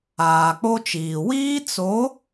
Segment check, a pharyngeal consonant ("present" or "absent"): absent